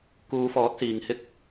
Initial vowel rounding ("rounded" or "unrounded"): rounded